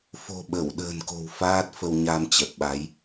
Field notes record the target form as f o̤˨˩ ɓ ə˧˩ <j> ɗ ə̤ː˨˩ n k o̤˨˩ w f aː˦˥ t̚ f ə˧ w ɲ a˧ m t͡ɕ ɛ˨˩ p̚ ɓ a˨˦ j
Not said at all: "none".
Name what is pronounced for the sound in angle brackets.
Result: w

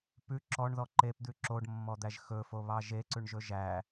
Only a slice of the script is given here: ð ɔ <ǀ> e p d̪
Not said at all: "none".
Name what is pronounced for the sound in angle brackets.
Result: ǃ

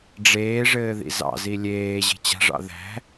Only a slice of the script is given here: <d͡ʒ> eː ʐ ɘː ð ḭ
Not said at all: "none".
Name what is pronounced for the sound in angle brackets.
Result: ɖ͡ʐ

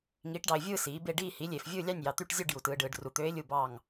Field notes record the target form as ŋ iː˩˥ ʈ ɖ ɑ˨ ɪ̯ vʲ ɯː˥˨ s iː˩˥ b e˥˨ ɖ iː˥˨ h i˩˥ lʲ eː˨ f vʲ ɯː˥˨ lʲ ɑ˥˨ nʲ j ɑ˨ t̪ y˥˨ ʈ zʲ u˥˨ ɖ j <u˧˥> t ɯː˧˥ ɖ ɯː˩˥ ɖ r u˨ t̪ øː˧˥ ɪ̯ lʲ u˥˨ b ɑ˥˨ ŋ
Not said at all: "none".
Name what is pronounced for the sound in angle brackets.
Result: u˨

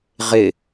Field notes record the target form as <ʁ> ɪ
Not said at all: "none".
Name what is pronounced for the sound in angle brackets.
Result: ʁ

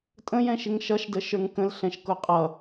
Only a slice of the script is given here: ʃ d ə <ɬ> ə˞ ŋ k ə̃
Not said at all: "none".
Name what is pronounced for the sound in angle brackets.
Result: ʃ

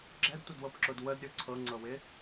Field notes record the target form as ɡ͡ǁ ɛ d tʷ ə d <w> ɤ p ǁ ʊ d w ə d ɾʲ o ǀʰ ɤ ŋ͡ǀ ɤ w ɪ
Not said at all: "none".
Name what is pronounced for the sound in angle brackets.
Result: w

